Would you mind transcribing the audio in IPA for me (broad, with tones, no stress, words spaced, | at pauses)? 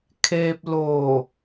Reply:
kʰeː˧p̚loː˧˩